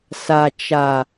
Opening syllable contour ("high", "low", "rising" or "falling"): low